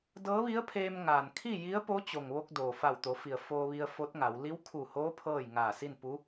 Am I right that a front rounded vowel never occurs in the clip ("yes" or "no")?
yes